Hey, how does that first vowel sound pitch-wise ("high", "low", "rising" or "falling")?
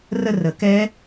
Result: falling